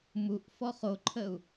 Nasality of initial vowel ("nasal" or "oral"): oral